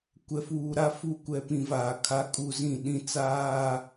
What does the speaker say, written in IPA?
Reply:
kʷ ɛ˨ f uː˨ ɾ a˦ f u˦˨ kʷ ɛ˦ p ĩ˨ v aː˨ kʰ a˦ kʼ u˦ z ĩ˦˨ ɗ ĩ˦ t͡s aː˦

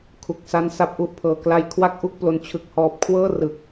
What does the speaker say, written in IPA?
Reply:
kʰ u˨˩ k̚ s a˦˥ n s a˥˩ p̚ ʔ u˥˩ ʔ pʰ ɤː˧ k l a˧ j kʰ w a˥˩ k̚ ʔ u˥˩ k̚ p l o˧ n t͡ɕʰ ɯ˨˩ k̚ h ɔː˨˩ p̚ kʰ w ɤː˥˩ r ɯ˨˩ k̚

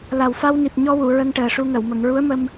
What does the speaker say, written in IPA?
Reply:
l a˨˩ w f a˧ w n i˨˩ p̚ ɲ ɔ˧ w u˨˩˨ ɹ ə˧ ŋ ʈ əː˨˩ ʂ u˧ ŋ ə˨˩˨ w m ə˨˩˨ ŋ ɹ u˧˥ ə̯ m ə˧ m

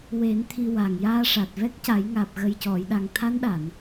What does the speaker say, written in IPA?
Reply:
w e˨˩˦ n t̪ʰ i˧ w a˨˩ ŋ j aː˧ ʂ a˨˩ t̚ v ɛ˦˥ k̚ c a˨˩˦ j ŋ aː˨˩ p̚ ɣ ə˨˩ j c ɔ˨˩˨ j ɗ a˨˩ ŋ t̪ʰ a˧˥ n ɗ a˨˩˨ n

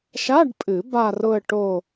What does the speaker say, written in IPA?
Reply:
ʃ a˧˥˧ ɖ pʼ ɨ˨˩˦ b a˥˧ r ʊ˥˧ ə̯ ʈ o˥˧

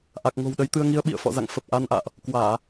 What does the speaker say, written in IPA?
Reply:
ʔ a˨˩ k̚ ŋ o̤˨˩ w ɗ ə˨˦ j t̪ ɨ˧ ə̯ ŋ i˨˦ ə̯ ɓ ḭ˧˨ ə̯ f ɔ̰˧˨ z a̰˧˨ ŋ f ə˨˩ p̚ ʔ a˧ n ʔ a̰ː˧˨ ʔ | k w aː˧˩˨

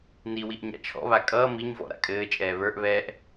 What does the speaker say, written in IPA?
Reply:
n i w i ʔ ɲ a̰ t͡ʃʰ ɔ̰ β a kʼ ʌː m i ɲ v ɔ̰ ɾ a̰ kʼ ɘː t͡ʃʼ ɛː β ə˞ ʔ β ɛː ʔ

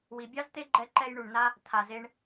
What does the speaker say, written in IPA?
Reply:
w i˨ bʲ ɑ˦ z t̪ e˦ ɡ͡ǃ ɛ˧ ǃ ɛ˧ j ɳ u˨ ɳ n a˦ | t̪ʰ a˨ z e˧ ɳ

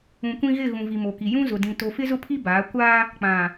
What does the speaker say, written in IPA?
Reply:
ũ˨ kʷ ĩ˦ ɣ ɪ˦˨ ɣ ũ˨ v i˨ m o˨ k i˨ j ũ˦ z ʊ˨ d ĩ˨ t o˨ f ɪ˦ z ʊ˦ pʰ i˦ b aː˨˦ kʷ aː˦ | k͡p ã˨

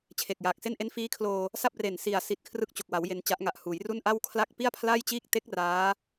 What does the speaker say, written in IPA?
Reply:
t͡ɕʰ e˨˩ k̚ j aː˨˩ k̚ s e˥˩ n ʔ e˦˥ n f iː˦˥ kʰ l oː˧ | s a˥˩ p̚ r e˨˩ n s i˨˩ a̯ s i˦˥ t̚ kʰ r ɯ˥˩ k̚ t͡ɕ o˨˩ k̚ w a˩˦ w j e˧ n t͡ɕ a˦˥ ʔ ŋ a˨˩ ʔ h uː˩˦ j r u˥˩ n ʔ a˥˩ w kʰ l a˦˥ k̚ p i˥˩ a̯ pʰ l a˥˩ j t͡ɕ iː˥˩ k̚ t e˦˥ k̚ r aː˦˥

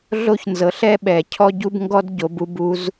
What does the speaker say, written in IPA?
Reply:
ɮ o˥ ç n z ɤ˨˥ ɬ ɛ˥ ɓ ɛ˨˩˦ cʰ ɔ˥ ɟ u˥ b ŋ ɡ ɔ˥ d ɟ o˨˥ b u˨˥ b u˨˥ z

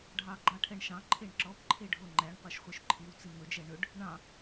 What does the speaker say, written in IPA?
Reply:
ɖʱ ɑ ɡ͡ǃ ɑ ʈʰ ɛ ɳ ʃ ɑ̃ ǃʰ e ɳ ǁ ɔ p ǃʰ e ɖʱ o ŋ͡ǃ æ ɳ qʷ e ʃ χʷ œ ʃ ǃʰ i w t͡s i m ɵ d͡ʒ ɛ ɳ ɵ ɖ | ɳ ɑ̃

